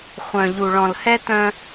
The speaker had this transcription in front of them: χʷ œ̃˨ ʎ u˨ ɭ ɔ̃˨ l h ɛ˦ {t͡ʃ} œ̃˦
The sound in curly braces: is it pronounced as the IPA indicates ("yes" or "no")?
no